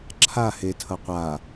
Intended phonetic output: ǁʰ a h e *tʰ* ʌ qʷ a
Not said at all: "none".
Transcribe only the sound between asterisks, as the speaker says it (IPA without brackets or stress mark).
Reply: tʰ